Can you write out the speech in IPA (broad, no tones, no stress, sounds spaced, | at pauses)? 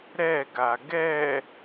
ɾ ɛ ɡ a ɡ ɛ